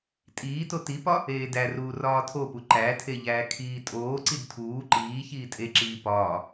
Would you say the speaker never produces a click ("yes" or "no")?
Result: no